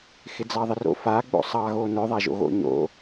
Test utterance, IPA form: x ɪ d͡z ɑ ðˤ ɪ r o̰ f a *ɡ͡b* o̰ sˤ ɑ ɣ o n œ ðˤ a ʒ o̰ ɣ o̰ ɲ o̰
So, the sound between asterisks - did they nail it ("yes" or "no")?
yes